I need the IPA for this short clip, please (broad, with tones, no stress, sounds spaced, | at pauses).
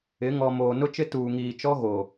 ɪ˨˦ ŋ ɔ˨ m oː˨ n ʊ˦ t͡ʃ ɪ˦ t uː˨ ŋ iː˨ t͡ʃ ɔ˦ ɣ o˨